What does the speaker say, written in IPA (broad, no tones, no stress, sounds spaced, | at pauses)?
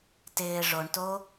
t ɪː ʐ o ɳ t o